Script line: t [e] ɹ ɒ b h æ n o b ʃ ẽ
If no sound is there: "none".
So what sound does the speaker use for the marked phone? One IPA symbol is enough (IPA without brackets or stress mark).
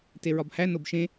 e